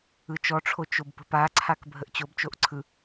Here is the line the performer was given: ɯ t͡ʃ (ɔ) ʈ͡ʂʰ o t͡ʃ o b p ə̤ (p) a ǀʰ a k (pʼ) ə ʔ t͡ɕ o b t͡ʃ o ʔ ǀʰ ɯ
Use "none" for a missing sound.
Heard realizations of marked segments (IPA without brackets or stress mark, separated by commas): ɔ, p, bʱ